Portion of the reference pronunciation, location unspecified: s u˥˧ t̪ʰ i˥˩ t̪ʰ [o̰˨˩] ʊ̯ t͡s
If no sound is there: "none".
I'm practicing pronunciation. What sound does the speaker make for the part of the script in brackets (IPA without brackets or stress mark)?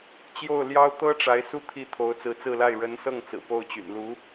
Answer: o˧˥